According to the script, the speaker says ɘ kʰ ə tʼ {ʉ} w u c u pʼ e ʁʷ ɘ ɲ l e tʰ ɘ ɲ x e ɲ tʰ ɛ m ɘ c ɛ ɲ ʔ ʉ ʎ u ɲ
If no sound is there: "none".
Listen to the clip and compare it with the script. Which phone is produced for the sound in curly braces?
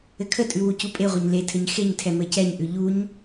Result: ʉ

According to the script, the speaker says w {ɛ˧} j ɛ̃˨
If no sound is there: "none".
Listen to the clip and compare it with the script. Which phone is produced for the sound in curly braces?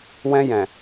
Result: ɛ̃˧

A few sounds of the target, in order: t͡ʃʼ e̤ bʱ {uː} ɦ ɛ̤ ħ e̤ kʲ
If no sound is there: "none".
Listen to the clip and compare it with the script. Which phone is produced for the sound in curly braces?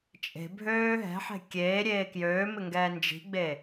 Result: øː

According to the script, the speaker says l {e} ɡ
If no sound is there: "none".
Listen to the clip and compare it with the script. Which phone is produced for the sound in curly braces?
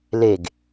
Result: e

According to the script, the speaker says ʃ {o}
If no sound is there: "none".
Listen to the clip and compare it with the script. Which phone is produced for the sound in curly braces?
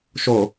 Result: o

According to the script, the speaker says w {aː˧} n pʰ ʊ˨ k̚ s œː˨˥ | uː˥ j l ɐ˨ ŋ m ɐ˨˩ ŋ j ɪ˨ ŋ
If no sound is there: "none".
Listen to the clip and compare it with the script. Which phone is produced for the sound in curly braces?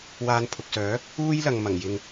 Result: aː˧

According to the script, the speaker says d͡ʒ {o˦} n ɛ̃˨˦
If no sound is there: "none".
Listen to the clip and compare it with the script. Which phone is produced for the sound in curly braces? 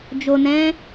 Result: o˨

